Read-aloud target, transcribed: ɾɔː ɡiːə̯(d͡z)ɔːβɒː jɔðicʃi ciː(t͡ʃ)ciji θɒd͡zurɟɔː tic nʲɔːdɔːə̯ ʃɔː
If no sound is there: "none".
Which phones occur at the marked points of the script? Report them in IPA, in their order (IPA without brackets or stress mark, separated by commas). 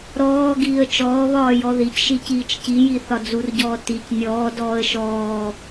t͡ʃ, t͡ʃ